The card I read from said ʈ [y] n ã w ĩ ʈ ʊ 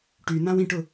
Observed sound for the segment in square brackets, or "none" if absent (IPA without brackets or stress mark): y